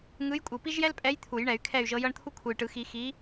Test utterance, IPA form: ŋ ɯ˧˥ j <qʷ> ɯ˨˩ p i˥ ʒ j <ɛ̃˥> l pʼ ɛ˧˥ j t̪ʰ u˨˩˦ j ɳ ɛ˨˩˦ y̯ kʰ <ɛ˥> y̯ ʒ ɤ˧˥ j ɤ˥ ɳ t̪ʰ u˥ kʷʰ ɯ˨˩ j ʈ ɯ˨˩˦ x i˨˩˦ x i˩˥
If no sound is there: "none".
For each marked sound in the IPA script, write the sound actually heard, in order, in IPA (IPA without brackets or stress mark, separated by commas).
kʷʼ, ɛ˥, ɛ˥˨